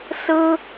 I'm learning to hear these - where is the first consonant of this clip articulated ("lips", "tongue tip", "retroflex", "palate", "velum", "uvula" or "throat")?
tongue tip